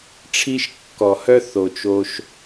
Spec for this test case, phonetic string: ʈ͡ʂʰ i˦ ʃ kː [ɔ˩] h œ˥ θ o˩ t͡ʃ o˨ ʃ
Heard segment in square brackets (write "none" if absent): ɔ˩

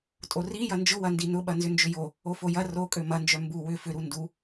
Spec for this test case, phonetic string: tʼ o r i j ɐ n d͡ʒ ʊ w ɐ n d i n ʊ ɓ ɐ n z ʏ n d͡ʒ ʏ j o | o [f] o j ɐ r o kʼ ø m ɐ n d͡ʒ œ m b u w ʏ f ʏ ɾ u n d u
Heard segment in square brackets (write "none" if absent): f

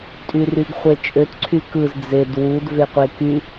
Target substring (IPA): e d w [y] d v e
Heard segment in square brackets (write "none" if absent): u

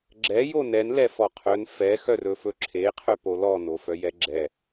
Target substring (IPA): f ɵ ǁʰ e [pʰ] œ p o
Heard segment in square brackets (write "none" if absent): qʰ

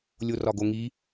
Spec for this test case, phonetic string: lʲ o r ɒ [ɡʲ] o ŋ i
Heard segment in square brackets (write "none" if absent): ɡ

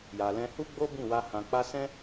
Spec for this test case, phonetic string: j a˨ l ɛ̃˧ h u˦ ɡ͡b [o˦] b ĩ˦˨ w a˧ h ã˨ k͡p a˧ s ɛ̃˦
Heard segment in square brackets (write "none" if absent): o˦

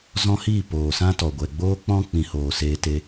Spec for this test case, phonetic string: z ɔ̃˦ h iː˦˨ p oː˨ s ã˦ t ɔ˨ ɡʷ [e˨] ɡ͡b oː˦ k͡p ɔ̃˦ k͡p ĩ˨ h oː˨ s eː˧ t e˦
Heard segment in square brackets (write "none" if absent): ɛ˨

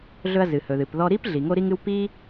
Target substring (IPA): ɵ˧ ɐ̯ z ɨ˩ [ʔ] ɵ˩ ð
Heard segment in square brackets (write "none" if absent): h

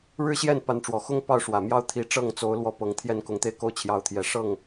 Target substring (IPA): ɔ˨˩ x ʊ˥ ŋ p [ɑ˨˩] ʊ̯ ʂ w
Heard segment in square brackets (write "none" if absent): ɑ˥˩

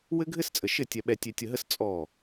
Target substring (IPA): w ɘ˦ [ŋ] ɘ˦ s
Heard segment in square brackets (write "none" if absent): ɡʱ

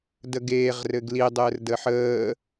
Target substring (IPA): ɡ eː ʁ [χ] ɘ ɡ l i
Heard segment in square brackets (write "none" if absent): r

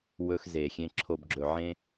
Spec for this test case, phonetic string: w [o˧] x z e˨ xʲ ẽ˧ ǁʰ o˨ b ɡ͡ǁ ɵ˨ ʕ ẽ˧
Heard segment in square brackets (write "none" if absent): ɵ˧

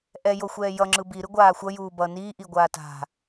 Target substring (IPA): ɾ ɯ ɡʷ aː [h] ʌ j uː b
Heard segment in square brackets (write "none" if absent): xʷ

